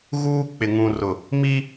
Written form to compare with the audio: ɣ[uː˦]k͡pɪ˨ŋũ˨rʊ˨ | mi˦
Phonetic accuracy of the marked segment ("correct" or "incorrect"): correct